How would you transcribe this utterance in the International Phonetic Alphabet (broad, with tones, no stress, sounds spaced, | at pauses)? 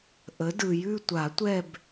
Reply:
ʔ ə˩˥ d ɯ˨ j ʉ˦˨ tʷ a˨˩˦ tʷ ɛ˦˨ b